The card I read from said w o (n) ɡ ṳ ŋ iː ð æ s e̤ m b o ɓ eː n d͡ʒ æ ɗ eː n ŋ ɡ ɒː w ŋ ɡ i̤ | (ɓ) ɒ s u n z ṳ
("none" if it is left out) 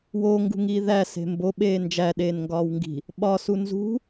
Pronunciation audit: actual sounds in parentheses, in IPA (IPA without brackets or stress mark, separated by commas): ŋ, ɓ